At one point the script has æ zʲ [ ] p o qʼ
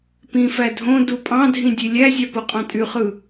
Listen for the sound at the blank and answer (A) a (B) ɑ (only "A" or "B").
B